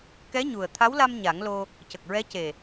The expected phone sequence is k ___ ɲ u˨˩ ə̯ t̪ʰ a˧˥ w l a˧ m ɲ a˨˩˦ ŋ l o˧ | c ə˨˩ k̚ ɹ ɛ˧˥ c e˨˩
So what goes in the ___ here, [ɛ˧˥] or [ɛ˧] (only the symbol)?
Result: ɛ˧˥